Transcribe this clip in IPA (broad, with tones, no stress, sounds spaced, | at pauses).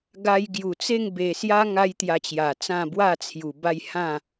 ɡ a˧ j ɡ j u˨˩ t͡s e˥˧ ŋ b e˨˩ s j a˦ ŋ a˦ j t̪ j a˧ t͡ɕ j a˨˩ t͡s ã˥˧ b w a˥˧ t͡sʰ j u˨˩ b a˥˧ j h ã˥˧